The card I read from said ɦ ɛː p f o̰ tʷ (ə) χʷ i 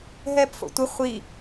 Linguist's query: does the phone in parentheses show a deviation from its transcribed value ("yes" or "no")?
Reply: no